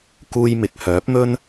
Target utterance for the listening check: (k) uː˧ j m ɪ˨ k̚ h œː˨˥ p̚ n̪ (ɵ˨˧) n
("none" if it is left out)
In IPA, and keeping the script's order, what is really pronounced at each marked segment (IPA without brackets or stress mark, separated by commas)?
k, ɵ˥